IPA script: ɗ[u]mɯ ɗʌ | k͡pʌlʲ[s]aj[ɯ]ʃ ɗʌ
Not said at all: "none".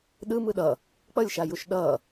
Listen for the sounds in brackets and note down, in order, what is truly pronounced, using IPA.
ɯ, ʃ, u

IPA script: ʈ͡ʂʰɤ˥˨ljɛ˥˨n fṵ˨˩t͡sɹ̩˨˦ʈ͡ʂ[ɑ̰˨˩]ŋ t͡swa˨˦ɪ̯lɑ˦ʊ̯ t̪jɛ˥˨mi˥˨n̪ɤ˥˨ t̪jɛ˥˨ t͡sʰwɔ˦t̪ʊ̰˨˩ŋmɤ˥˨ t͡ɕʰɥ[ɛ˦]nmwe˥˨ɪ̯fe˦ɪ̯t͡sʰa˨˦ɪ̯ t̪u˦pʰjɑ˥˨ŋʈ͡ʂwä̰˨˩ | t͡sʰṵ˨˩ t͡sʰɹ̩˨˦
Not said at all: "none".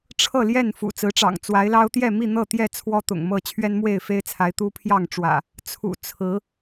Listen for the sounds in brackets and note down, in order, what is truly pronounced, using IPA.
ɑ̰˨˩, ɛ˦

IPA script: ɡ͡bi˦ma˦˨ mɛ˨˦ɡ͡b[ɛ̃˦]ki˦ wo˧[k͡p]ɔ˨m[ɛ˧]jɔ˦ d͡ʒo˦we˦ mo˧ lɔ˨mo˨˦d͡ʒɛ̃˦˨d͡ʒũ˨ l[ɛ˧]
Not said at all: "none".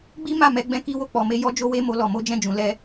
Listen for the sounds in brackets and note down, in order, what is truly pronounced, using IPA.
ɛ̃˦, k͡p, e˧, ɛ˧

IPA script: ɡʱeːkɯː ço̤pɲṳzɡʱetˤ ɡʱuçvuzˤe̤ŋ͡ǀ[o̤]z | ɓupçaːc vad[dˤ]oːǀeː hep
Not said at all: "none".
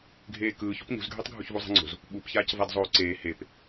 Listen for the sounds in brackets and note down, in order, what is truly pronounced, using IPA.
o̤, zˤ

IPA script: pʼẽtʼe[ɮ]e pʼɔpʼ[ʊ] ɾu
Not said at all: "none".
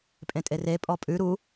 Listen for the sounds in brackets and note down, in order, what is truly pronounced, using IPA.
r, ʉ

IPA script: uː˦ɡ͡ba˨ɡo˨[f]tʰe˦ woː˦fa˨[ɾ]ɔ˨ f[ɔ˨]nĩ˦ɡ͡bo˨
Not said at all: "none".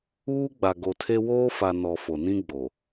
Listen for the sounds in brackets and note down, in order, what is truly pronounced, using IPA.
none, n, o˨

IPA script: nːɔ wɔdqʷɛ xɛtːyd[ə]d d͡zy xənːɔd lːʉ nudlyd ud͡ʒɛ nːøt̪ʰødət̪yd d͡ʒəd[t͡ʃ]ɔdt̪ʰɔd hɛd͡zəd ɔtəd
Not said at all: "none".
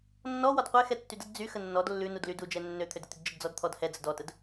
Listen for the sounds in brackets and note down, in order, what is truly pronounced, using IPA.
ə, d͡z

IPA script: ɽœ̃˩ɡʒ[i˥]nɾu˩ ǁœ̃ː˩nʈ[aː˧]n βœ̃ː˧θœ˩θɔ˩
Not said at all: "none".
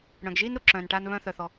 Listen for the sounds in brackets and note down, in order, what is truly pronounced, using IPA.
iː˥, aː˧

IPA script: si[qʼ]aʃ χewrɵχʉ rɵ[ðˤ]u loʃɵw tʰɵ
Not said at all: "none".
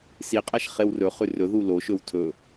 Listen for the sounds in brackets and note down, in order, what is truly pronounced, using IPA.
qʼ, ð

